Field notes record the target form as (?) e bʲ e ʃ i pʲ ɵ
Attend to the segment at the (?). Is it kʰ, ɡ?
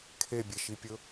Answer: kʰ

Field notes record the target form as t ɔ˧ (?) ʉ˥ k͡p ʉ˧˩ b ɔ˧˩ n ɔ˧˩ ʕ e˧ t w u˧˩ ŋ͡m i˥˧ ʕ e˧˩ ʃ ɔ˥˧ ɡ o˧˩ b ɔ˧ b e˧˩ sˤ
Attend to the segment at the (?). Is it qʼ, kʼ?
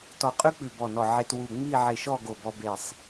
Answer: qʼ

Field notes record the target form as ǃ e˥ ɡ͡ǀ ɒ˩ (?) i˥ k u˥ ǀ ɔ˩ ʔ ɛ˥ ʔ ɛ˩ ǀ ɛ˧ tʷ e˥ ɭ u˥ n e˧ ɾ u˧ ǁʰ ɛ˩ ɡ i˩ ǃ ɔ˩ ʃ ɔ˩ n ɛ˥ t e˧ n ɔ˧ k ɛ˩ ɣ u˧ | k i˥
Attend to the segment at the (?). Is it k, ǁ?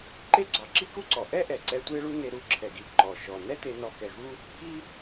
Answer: ǁ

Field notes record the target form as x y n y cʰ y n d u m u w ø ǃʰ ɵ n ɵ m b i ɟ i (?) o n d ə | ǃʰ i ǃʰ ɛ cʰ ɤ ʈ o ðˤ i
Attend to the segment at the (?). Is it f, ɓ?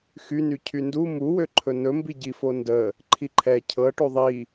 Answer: f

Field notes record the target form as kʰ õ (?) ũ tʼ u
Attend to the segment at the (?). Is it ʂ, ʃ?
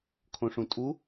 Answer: ʂ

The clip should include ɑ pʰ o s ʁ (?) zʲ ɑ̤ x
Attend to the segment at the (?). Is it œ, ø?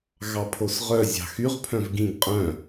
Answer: œ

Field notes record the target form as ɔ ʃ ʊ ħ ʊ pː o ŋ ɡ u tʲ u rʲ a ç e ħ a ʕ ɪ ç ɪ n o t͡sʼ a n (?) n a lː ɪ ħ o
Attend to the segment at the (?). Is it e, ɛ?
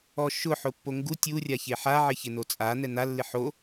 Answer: ɛ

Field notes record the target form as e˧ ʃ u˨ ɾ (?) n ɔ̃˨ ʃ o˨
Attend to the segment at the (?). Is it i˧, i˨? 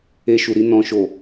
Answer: i˧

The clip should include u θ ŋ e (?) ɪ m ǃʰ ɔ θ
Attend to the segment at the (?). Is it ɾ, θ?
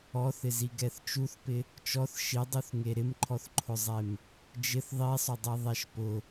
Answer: ɾ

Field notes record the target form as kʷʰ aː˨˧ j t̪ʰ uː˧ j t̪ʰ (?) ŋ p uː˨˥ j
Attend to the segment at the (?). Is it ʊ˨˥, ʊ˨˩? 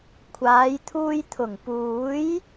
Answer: ʊ˨˩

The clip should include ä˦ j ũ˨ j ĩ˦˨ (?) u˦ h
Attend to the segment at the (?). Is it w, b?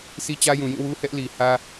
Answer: w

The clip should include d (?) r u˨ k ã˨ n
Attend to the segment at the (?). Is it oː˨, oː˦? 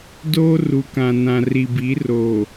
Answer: oː˦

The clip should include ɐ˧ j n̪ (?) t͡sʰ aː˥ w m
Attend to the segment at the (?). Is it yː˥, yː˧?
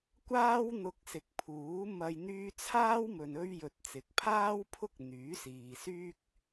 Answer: yː˥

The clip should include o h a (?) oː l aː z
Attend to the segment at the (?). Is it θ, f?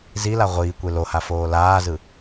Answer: f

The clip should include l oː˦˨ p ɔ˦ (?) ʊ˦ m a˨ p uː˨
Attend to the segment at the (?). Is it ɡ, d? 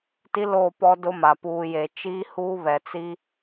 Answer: d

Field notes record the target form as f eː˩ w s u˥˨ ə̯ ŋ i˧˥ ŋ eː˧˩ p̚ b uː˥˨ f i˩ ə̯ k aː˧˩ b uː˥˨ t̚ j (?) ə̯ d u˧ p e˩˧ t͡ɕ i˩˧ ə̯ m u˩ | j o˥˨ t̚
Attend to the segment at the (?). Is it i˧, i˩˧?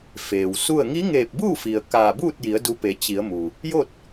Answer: i˩˧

